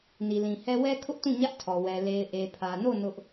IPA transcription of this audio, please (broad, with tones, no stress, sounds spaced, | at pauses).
n i˨ l ĩ˨ h ɛ˦ w ɛ˦ kʰ ʊ˦ ʔ t ũ˦˨ ɲ ä˦ ʔ tʰ ɔ˨ w ɛ˨ l e˨ ɪ̯ ʔ e˨ pʰ ä˨ n o˦˨ n ʊ˦ ʔ